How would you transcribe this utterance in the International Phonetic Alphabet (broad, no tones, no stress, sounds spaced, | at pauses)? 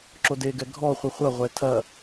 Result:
ǁ o d e ɡ ɛ ɡʱ ɔ χʷ ɨ χʷ ɐ ʁʷ ɛ tʰ ɐ